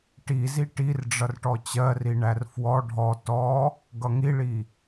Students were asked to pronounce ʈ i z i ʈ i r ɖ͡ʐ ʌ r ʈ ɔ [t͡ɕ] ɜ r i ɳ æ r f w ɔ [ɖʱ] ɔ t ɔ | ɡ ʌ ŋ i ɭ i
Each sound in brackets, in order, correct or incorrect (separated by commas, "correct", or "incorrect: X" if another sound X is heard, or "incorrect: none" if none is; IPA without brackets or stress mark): correct, correct